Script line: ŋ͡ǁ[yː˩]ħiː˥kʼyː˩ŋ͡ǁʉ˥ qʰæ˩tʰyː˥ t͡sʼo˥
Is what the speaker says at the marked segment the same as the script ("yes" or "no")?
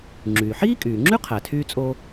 yes